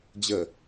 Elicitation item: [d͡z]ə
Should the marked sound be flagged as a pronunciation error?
yes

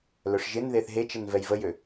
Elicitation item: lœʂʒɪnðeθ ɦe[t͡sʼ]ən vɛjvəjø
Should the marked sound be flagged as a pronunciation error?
yes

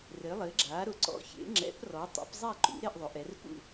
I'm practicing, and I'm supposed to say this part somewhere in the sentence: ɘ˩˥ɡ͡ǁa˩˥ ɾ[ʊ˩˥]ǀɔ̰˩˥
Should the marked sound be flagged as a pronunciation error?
no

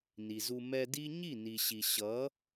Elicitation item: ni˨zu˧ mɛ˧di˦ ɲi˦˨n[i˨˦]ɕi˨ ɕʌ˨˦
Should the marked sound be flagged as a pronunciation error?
yes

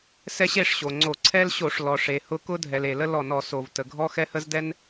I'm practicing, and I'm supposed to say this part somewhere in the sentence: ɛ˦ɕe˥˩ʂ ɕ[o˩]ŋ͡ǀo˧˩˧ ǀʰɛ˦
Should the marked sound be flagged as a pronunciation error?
no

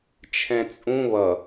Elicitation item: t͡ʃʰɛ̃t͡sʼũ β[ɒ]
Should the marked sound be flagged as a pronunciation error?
yes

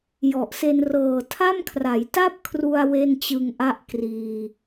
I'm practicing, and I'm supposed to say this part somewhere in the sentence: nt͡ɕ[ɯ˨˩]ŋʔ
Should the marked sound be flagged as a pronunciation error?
yes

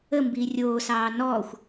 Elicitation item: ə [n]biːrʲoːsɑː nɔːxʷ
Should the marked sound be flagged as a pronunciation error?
yes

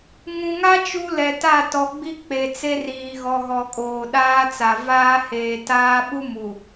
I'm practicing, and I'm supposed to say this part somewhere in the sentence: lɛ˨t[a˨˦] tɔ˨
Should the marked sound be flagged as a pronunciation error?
yes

